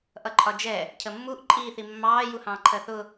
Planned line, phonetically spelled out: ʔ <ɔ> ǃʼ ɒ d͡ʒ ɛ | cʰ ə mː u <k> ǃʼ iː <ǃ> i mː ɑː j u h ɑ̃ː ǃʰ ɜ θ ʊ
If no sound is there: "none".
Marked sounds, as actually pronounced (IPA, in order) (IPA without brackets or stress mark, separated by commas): ʌ, ʔ, θ